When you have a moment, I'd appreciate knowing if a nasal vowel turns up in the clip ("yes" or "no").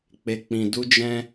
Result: yes